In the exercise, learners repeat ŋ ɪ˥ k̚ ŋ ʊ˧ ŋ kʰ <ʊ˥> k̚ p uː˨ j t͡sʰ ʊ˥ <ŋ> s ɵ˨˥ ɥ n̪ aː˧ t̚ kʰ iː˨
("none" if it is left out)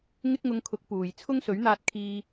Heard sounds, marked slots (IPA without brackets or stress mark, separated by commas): ʊ˨˥, ŋ